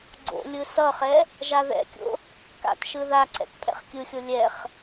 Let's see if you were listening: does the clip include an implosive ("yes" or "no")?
no